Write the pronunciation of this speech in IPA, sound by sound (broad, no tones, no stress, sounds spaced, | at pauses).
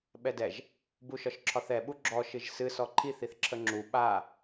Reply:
ɓ ɛ d ɛ ʒ | b u ʃ ɒ ʃ ǁʰ ɒ θ ɛ ɓ u ɡ͡ǁ ɔ ʃ ɨ ʒ s ɨ s ɔ ǃʰ i θ i θ ǁʰ ə ŋ͡ǁ u ɓ a